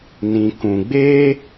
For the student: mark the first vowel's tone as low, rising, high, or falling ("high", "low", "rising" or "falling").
low